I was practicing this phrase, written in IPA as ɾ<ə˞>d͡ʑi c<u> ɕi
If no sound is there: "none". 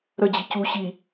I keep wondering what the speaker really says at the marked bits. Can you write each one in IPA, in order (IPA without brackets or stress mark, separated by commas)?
ə, u